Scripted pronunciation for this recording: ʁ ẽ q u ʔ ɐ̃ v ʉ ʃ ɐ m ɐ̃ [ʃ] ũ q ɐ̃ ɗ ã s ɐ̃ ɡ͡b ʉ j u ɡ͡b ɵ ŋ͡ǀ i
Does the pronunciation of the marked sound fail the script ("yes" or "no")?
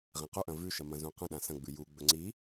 yes